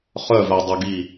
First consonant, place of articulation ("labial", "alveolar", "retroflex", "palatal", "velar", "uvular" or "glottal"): uvular